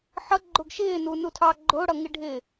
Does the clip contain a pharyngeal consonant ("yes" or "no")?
yes